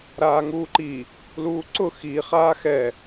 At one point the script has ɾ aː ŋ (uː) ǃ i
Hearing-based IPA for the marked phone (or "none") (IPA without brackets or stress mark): uː